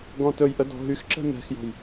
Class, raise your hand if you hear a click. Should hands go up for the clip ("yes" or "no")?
yes